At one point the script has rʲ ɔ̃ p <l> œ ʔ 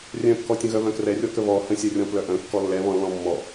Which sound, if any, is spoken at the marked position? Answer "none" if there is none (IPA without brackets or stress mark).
l